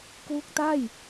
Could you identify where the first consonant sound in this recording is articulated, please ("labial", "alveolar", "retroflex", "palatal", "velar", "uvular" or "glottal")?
velar